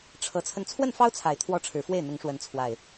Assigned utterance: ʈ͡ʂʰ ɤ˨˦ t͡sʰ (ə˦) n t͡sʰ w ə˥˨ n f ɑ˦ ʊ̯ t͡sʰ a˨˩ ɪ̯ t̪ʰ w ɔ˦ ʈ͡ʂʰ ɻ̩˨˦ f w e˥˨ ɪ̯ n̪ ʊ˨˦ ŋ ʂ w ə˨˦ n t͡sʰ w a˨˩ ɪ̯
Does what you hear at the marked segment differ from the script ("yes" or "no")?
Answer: yes